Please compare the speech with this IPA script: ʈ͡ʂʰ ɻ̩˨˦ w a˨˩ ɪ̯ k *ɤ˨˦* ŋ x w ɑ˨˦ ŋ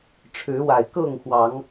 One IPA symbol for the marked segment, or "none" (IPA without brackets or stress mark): ɤ˥˨